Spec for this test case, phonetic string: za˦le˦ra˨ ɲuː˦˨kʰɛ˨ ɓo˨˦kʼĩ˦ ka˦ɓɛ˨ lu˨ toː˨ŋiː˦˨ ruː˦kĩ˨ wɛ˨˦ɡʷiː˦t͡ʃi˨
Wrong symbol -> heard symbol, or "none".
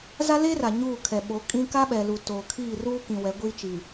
ŋ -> kʰ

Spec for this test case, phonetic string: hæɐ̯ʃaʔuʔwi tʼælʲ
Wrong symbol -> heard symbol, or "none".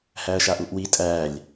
none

